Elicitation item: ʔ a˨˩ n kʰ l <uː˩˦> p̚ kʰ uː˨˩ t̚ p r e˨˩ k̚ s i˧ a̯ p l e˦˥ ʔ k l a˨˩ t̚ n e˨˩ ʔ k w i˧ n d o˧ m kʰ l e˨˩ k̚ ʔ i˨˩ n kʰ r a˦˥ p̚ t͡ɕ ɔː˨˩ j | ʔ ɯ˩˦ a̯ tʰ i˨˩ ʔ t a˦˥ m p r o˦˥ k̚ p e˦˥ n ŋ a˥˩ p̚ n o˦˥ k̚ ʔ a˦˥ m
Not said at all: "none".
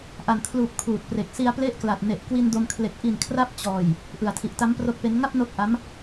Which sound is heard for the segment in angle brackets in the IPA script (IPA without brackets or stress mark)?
uː˨˩